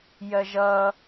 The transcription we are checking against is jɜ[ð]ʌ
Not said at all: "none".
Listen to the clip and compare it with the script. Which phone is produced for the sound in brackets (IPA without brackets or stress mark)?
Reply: ʒ